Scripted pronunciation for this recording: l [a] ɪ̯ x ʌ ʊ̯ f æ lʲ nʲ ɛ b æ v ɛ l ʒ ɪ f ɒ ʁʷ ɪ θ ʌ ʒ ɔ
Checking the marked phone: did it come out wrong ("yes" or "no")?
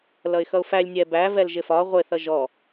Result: yes